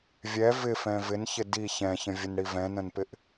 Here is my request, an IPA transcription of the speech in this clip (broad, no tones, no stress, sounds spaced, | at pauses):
vʲ ɛ v ɪ f ɛ̃ v ɪ n ç ɪ d i ç ɛ̃ ç ə̃ vʲ ə n ɽ i v ɛ̃ n ə̃ n p ɪ ʔ